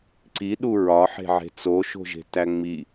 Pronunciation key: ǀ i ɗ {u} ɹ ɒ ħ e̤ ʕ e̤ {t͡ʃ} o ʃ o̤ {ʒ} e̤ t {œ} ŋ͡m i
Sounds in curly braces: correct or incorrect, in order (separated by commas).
correct, incorrect, correct, incorrect